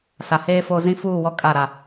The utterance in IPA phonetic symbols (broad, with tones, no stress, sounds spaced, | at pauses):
s a˨ h eː˦ f o˦ z ĩ˦ f uː˦˨ w ɔ˦ kʼ a˦˨ ɾ a˦˨